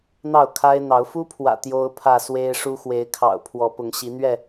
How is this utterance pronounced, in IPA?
n̪ɑ˥˨ʊ̯kʰa˦ɪ̯n̪ɑ˨˦ʊ̯ fu˦pʰwä̰˨˩ t̪jo˦ʊ̯pʰä˥˨swe˦ɪ̯ ʂu˦xwe˨˦ɪ̯kʰɑ̰˨˩ʊ̯ pʰwɔ˨˦ pʊ˨˦ŋ ɕi˨˦n̪ɥɛ˥˨

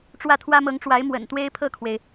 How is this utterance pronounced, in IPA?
ʈ͡ʂwä˥˩t̪ʰwä˥mɤ˧˥ŋʈ͡ʂwa˧˥ɪ̯ mwə̰˨˩nt̪we˥ɪ̯pʰɤ˥˩kʰwe˩ɪ̯

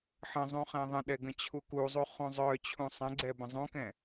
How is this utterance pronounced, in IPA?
ħə̃zˤũ χɛ̃ðˤə̃ɗɛ ɡə̃t͡ɕʰukuzˤu χũzˤœt͡ɕʰũ sˤə̃ɡ͡ǀɛ bə̃zˤũkɛ̃

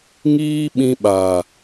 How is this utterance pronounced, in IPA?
ŋiː˦ɓĩ˧ɓa˨

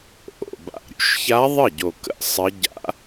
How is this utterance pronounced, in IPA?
ʔo̰˨˩ ba̰˨˩ ɾʲṵ˧˥ʃça˧˥ðˤə˥˩ɟo˨˩ kə̰˥˩sˤə˧˥ ɟa̰˧˥

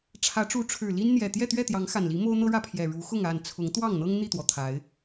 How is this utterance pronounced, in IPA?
ʈ͡ʂʰä˨˦ʈ͡ʂu˨˦ʈ͡ʂʰɻ̩˨˩ li˦nn̪jɛ˨˩ t̪jɛ˥˨t̪ɥɛ˥˨t̪jɑ˨˦ŋ xa˨˩nli˨˦ mo˦ʊ̯n̪ɤ˦ɻä˥˨pʰjɛ˨˩ ɻu˨˦xʊ˥˨ŋa˥˨n t͡sʰʊ˨˦ŋt̪wɑ˥˨ŋn̪ɤ˦ŋ n̪i˥˨t̪wɔ˩t̪ʰa˨˦ɪ̯

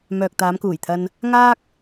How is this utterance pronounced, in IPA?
mœː˨k̚t̪aː˨˧mkuː˨˩jt̪ʰɐ˧n | ŋaː˥k̚

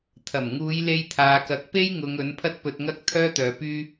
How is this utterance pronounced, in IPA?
t̪ʰɐ˨˩mŋuː˨˧j le˧jt̪ʰaː˨kɐ˨˥k̚ pe˥jŋʊ˨˧ŋ ɵ˨˥npʰɐ˥t̚pɵ˧t̚ŋɐ˥k̚ t̪ʰœː˥t̪œː˨˧pyː˥

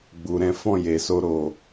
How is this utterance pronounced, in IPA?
ɡ͡bu˨ɾɛ̃˨˦fɔ̃˦˨ je˨so˧ ɾo˧

